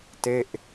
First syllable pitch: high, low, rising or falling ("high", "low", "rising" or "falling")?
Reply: falling